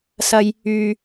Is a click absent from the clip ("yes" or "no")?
yes